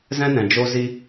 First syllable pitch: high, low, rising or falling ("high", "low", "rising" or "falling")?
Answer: high